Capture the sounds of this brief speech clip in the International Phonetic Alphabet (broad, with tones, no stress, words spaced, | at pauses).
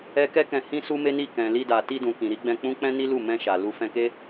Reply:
ɛ˦ kɛ˦kɛ̃˧ hĩ˦su˦me˦ni˦˨ kɛ̃˨li˧da˨ ti˧dũ˨kĩ˨ ɾi˨˦ɡ͡bɛ̃˧k͡pũ˦k͡pɛ̃˦ ni˦lu˦˨ mɛ̃˧ʃa˨ lu˧fɛ̃˧ke˦